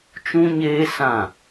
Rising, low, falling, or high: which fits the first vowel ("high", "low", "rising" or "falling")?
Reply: high